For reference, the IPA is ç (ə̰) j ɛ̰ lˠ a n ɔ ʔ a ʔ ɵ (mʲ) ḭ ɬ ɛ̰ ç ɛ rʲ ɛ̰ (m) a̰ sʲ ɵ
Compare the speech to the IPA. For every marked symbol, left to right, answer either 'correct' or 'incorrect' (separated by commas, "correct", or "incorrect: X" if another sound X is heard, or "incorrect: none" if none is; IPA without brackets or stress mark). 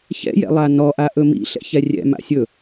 incorrect: ɛ̰, incorrect: m, correct